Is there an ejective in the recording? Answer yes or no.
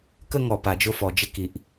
no